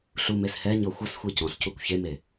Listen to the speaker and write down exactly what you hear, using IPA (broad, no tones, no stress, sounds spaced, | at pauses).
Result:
ɬ u m e s h ɛ ɲ ɔ xʷ ʌ s xʷ i c ɔ̃ ɬ c u kʷ ç e m e